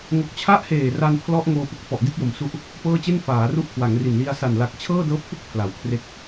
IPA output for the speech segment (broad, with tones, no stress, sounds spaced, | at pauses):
ŋ o˨˩ k̚ t͡ɕʰ a˦˥ ʔ h eː˨˩ r a˧ n pʰ l ɔ˦˥ ʔ ŋ oː˧ p u˨˩ k̚ f ɔ˨˩ ʔ d i˥˩ t̚ j o˨˩ m s u˦˥ ʔ | p ɤː˥˩ t͡ɕ e˥˩ n f aː˩˦ r u˥˩ ʔ kʰ w a˩˦ ŋ r i˨˩ n l i˧ a̯ s a˨˩ n l a˨˩ k̚ t͡ɕʰ ɤː˥˩ d ɤː˦˥ p̚ f ɯ˥˩ k̚ pʰ l a˩˦ w kʰ r e˥˩ k̚